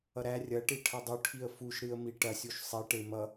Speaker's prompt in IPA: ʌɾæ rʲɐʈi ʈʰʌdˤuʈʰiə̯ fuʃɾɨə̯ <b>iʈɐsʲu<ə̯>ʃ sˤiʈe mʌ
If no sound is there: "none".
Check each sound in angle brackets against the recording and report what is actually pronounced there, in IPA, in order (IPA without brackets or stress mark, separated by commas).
m, none